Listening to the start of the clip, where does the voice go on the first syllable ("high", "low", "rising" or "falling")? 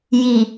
low